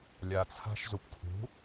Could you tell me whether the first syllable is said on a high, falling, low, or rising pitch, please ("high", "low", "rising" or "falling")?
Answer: low